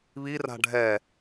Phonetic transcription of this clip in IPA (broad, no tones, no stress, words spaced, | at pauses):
βi ra̤ɖʱɛː